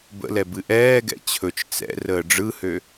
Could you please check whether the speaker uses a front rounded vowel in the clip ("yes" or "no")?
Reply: yes